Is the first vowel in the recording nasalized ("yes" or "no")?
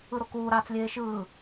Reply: no